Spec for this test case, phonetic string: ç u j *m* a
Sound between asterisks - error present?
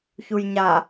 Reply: yes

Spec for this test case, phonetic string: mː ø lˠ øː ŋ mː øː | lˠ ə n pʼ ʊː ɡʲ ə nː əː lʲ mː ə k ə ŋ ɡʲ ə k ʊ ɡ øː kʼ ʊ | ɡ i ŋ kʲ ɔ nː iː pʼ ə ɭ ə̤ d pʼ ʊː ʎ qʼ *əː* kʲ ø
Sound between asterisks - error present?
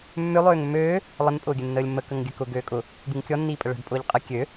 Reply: yes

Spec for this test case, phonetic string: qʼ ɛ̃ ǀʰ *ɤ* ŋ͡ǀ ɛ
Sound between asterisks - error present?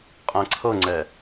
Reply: no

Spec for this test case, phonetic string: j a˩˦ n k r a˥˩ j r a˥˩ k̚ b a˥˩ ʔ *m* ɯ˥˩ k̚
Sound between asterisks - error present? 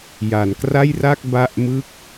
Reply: no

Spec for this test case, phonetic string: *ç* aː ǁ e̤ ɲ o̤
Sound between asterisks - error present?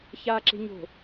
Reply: no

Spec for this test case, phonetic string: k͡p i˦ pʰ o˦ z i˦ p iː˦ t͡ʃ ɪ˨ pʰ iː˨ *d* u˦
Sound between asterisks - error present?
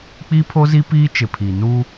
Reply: yes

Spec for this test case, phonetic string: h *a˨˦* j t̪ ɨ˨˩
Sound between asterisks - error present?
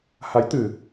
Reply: no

